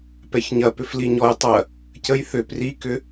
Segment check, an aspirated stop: absent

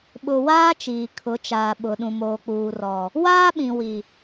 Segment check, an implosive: present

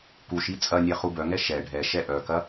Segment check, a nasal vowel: absent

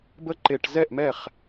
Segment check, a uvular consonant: present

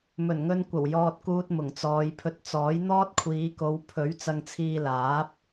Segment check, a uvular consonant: absent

